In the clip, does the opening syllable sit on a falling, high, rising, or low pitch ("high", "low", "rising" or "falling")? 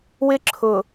high